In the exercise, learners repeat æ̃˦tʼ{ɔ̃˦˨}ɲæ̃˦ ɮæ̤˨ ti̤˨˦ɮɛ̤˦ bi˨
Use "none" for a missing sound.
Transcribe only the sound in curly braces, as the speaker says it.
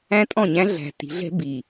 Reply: ɔ̃˦˨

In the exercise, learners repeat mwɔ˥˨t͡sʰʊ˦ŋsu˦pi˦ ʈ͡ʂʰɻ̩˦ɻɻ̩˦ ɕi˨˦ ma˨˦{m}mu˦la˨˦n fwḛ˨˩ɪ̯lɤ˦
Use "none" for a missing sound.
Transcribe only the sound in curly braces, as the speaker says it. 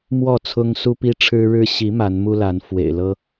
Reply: n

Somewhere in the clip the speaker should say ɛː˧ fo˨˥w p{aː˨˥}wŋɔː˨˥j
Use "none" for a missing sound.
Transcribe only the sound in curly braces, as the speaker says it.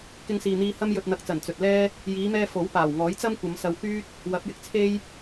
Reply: aː˨˩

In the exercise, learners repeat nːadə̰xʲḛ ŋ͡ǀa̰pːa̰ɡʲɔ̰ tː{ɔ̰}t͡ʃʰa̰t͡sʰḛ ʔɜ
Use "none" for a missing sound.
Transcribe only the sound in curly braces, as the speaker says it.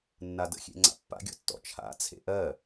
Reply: ɔ̰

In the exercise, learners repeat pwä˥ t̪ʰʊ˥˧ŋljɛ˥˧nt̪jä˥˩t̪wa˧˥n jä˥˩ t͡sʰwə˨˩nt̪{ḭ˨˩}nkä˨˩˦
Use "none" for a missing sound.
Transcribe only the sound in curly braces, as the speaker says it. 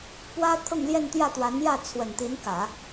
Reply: i˧˥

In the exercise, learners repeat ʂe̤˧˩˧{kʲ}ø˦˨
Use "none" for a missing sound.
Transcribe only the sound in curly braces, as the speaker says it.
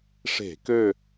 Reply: k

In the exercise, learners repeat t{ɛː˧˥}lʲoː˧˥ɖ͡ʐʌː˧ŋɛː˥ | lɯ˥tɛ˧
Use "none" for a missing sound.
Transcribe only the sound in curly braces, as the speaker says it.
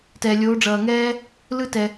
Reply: ɛː˧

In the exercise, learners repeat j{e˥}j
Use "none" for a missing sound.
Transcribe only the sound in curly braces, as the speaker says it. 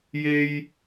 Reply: e˨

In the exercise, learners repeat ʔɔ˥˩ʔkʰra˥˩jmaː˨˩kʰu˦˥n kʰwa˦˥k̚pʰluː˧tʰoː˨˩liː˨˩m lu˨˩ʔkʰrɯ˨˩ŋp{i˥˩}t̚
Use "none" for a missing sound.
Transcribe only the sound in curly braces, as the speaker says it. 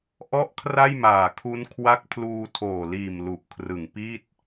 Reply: i˥˩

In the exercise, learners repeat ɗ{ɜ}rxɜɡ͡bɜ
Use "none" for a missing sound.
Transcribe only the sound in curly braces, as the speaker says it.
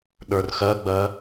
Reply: ə˞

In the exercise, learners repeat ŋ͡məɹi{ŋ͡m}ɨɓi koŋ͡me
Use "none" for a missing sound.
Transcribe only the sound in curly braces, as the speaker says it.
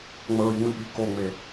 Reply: ŋ͡m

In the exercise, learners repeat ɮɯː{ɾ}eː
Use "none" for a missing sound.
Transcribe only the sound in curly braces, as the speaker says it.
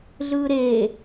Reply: ɾ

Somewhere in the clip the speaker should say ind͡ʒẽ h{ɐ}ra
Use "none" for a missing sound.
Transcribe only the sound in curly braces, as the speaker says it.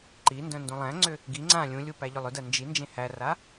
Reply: æ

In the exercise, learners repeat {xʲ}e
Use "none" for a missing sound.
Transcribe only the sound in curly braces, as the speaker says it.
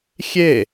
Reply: xʲ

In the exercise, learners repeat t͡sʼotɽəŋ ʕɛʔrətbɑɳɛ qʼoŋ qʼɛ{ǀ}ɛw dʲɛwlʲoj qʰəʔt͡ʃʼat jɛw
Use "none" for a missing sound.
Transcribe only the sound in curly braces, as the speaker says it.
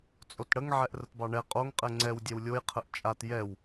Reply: ŋ͡ǀ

